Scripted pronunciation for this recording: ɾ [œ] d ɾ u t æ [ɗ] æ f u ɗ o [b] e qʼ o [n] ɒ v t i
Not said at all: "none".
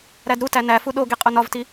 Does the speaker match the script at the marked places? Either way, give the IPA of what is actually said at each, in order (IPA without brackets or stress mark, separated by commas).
æ, n, ɡ, n